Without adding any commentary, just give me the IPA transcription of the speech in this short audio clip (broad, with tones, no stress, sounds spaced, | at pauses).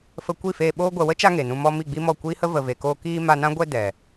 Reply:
f ə˧ kʷ i˦˨ f eː˧ ɓ oː˦ ɡʷ ɛ˨ w ə˦ t͡ʃ a˧ ŋ e˨ n ũ˧ m ɔ˧ m i˦˨ ɡ͡b i˦ m ɔ˦˨ kʷ iː˦ h ə˦ v ə˨ v e˨ k oː˧ k iː˧ m a˧ n ã˦ ɡʷ ɛ˧ d ɛ˨